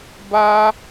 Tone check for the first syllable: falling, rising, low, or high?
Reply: high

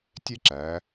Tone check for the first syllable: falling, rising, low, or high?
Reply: high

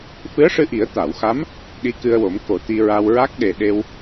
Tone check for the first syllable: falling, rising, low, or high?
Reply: rising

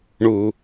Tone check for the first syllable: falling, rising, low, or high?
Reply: low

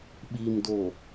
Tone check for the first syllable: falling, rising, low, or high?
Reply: low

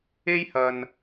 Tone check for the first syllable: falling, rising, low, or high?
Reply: high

